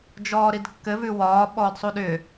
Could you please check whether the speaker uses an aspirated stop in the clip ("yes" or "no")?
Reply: no